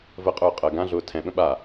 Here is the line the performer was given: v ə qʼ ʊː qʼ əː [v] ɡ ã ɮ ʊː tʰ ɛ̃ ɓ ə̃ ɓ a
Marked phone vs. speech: incorrect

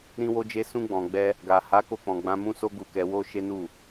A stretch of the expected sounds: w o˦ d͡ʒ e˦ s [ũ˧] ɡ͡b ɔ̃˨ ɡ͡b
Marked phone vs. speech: correct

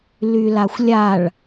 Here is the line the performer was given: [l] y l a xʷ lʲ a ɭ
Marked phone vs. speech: correct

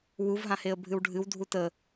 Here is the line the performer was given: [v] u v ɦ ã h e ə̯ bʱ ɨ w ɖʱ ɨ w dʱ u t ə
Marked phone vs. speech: incorrect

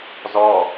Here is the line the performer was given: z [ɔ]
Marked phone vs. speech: correct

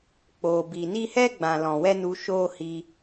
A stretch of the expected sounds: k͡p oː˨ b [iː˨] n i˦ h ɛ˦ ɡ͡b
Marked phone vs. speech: correct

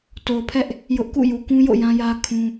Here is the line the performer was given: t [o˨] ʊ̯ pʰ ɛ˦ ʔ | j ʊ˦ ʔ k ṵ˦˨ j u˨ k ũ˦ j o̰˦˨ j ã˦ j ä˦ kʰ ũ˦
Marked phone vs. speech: correct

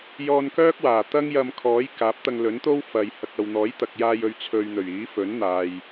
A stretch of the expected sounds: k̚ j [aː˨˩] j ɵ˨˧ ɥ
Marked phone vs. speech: incorrect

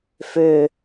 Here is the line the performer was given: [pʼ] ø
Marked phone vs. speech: incorrect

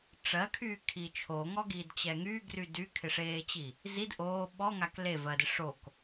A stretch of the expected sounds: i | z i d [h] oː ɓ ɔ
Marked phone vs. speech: incorrect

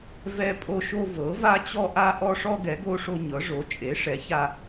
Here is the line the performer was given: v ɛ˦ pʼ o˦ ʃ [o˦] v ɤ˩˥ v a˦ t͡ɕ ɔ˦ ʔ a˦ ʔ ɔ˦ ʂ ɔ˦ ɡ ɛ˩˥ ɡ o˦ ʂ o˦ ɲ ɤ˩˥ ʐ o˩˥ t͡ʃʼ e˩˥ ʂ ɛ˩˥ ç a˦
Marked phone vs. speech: correct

